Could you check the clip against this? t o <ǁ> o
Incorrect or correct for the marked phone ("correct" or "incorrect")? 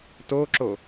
correct